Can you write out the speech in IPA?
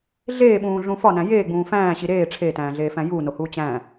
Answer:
ɮ eː ɓ ũː ɮ ũ f ɒ n æ̃ j eː ɡ͡b ũː f æ̃ː ɕ i ɾ eː ʈ͡ʂʰ e t æ̃ː ɮ eː f æ̃ j uː n o h uː t͡ɕ æ̃

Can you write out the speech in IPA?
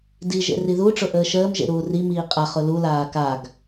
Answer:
d i ʒ ḛ r i ð u ʈ͡ʂ ʊ ʔ əː ʃ əː m ʒ ḛ ɾ uː r i m iː qʼ a χ ʊ l u l aː k a ɡ

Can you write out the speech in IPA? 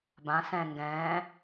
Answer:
b ã s ɛ̃ ŋ ɡ ɛ̃ː

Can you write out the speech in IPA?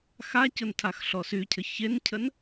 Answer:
x a c ʊ n tʰ a x ɬ ɔ s y cʰ ə ç e n cʰ ə n

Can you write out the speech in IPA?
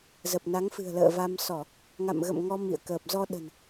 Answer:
z ə˨˩ p̚ n a˨˦ ŋ f ɨ̤˨˩ ə̯ l ə̰ː˧˨ v a˧ m s ɔ˧˩˨ | ŋ a̰˧˨ m ɣ ə̰˧˨ m ŋ ɔ˧ m ḭ˧˨ ə̯ k əː˨˩ p̚ z ɔ˧ ɗ ə̤˨˩ n

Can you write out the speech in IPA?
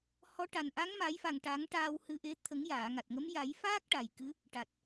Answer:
h ɔ˧˥ ʈ a˨˩ n ʔ a˧˥ ŋ m a˨˩˦ j f a˨˩ ŋ ʈ a˨˩˦ ŋ ʈ aː˧ w h ɨ˧ ʔ e˧˥ t̪ʰ ə˨˩˦ ŋ j aː˨˩˨ ŋ a˨˩ t̚ ŋ ə˧˥ m j a˨˩˦ j f aː˦˥ k̚ ʈ a˨˩ j k ɨ˧˥ | ʈ a˨˩ t̚

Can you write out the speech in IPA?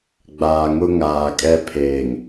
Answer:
ɡ͡b aː˨ ŋ ʊ˦ ŋ aː˨ kʼ ɛ˦ pʰ eː˨ ŋ

